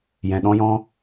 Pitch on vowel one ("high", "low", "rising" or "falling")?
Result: low